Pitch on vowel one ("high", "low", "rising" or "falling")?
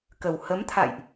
low